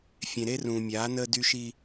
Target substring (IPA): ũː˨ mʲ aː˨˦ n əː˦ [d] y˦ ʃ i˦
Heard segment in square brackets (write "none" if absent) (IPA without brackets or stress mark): d